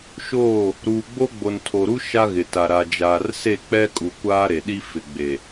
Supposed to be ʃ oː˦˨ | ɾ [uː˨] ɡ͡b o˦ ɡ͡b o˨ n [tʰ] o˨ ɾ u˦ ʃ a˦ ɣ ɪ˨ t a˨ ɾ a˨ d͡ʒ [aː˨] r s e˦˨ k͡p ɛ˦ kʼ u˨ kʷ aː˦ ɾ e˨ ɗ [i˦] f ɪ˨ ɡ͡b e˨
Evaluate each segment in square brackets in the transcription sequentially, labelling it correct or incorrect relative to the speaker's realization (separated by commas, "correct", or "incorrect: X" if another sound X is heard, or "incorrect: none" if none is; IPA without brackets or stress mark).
correct, correct, correct, correct